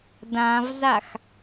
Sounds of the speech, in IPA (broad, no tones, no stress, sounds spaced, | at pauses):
d ã v z a x